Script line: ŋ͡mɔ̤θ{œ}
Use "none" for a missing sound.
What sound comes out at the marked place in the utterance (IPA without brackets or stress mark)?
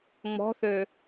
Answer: ø